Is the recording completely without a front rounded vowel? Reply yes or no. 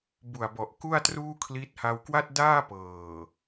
yes